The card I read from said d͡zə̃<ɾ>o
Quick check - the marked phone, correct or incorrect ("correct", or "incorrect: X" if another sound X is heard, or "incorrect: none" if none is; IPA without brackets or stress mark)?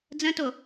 incorrect: t